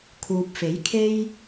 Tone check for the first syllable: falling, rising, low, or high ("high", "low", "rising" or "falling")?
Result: low